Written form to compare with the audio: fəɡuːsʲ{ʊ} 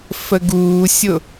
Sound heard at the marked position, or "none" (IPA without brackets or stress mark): ʊ